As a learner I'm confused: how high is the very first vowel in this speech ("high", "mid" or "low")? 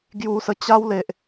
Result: high